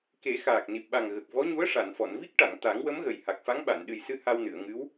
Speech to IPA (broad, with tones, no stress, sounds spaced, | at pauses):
k e˨˩˦ x aː˨˩ k̚ n i˨˩ p̚ ɓ a˨˩ ŋ ɣ ə˨˩ k̚ v ɔ˧˥ ɲ u˧˥ ə̯ ʂ a˨˩˨ n f ɔ˨˩˨ n v i˦˥ k̚ ʈ a˨˩˨ ŋ t̪ a˨˩˦ ŋ w ə˧˥ m ɣ ə˨˩ j h a˨˩ k̚ f a˧˥ ŋ ɓ a˨˩˨ n ɗ ɨ˨˩ j s ɨ˧ h a˧ w n ɨ˨˩˨ ə̯ ŋ ɨ˧˥ w